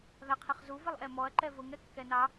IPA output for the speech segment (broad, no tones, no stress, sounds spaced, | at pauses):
ð a qʰ ɪ χ z u v ɪ lˠ ʔ ɛ m ɔ ɐ̯ ǃ ɛ v ʊ ŋ ɛ kː ɛ n ɑ